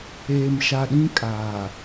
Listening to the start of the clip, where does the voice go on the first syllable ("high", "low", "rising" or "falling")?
low